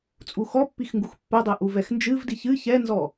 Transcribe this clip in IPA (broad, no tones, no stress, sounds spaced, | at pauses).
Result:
t͡sʼ u x ɔ pː i x ŋ ɡ u x pː ɛ dˤ ɛ ʔ u v ɛ x n d͡ʒ ɨ v d i ç ɨ ç ɛ n z ɔ